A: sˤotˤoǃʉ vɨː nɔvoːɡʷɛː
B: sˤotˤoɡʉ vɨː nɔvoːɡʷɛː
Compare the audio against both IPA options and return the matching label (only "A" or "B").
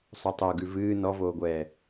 B